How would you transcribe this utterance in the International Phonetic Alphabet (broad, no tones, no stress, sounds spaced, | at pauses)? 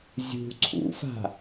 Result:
zʲ ṳ ǀʰ ṵ f a̤